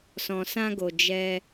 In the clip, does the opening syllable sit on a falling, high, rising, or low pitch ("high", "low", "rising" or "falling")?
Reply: low